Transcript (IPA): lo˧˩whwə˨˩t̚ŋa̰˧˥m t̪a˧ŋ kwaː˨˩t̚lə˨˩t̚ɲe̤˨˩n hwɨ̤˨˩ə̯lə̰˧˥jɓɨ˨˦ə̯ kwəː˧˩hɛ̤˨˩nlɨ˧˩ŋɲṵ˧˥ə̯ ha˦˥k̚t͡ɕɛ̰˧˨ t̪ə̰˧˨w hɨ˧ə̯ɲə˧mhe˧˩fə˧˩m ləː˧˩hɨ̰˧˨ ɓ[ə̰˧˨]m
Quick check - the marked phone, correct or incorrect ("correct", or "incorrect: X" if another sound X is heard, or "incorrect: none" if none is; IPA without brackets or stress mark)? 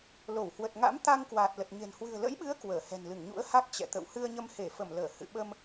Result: incorrect: ə˧